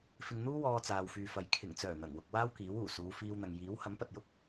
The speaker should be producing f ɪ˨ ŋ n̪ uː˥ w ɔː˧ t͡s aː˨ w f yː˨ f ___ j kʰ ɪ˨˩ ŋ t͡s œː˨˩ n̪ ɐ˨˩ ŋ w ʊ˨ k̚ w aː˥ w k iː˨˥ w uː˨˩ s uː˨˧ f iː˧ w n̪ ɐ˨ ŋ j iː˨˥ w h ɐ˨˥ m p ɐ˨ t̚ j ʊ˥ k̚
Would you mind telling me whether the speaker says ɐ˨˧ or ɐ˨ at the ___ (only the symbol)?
ɐ˨